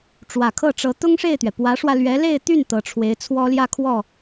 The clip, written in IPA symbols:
ʈ͡ʂ w ä˨˩ kʰ ɤ˥˩ ʈ͡ʂ ɤ˧˥ t̪ ʊ˥ ŋ ʂ e˥˩ ɪ̯ t̪ ɥ ɛ˩ p w ä˧˥ ʂ w ä˧ l ɥ ɛ˧˥ l e˥˧ ɪ̯ t̪ y˥˩ n t̪ ɤ˧˥ ʈ͡ʂʰ w e˧˥ ɪ̯ t͡sʰ w ɔ˥ l j ä˥˧ kʰ w ɔ˥˩

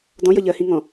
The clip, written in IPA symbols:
d ɔ̃ j ʌ ʎ ɜ h ĩ ŋ ɔ̃

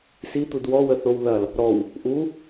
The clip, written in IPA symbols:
s i t̪ u d w ɔ w ə θ o w ð ɐ l | ɾ ɔ w | ʔ u

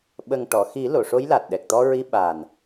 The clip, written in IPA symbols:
ɓ ə˨˩ ŋ ʈ ɔ˨˩˨ x i˨˩˦ l o˨˩˨ ʂ o˧˥ j l a˨˩ t̚ ɗ ɛ˨˩ k̚ t̪ ɔ˧ ɹ i˧ ɓ a˨˩ n

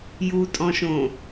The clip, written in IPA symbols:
j u tʼ ɔ̃ ʃ õ

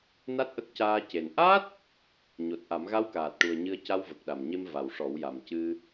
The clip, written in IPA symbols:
n a˦˥ t̚ ʔ ə˦˥ k̚ c aː˧ c e˨˩ n ʔ a˦˥ t̚ | ɲ o˨˩ t̚ ʔ a˨˩˦ m ɣ a˧˥ w k aː˨˩ t̚ ʈ u˨˩ ə̯ ɲ ɨ˧ ə̯ c a˧ w v ə˨˩ k̚ ɗ a˨˩ m ɲ e˧ m v a˨˩ w ʂ ɔ˨˩˦ w j a˨˩ m c ɨ˧

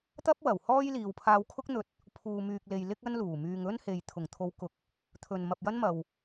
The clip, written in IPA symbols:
t̪ ɐ˥ p̚ w ɐ˨˩ w h ɔː˥ j l iː˨ w pʰ aː˧ w kʰ ʊ˥ k̚ n̪ ɵ˧ t̚ | pʰ uː˨ m yː˨ k̚ l e˨ j l ɪ˥ k̚ ɐ˥ n l uː˨˩ m yː˧ ŋ ɵ˥ n h e˨ j t̪ʰ ʊ˨˩ ŋ t̪ʰ o˨˧ w k ʊ˨ k̚ | t̪ʰ ɵ˨ n m ɐ˨ p̚ j ɐ˥ n m ɐ˨ w

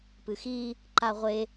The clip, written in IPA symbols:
p ɨ x i | ǃ a ʁʷ e

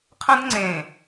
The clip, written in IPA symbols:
qʰ ə̃˦ d ŋ͡ǀ ẽ˨

